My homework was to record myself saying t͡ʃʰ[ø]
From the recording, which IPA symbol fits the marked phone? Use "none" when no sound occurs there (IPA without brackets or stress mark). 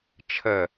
ə